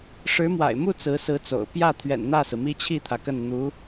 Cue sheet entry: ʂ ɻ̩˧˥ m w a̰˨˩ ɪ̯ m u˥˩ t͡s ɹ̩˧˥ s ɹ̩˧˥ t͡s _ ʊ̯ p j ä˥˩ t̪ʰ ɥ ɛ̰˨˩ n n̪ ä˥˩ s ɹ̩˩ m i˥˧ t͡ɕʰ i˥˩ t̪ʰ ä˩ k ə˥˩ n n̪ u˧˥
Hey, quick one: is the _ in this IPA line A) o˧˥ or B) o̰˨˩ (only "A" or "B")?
B